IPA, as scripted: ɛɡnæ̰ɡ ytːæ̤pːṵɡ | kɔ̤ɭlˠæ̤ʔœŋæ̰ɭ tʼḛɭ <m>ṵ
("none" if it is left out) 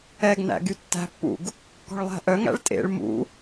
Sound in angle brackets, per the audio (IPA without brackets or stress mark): m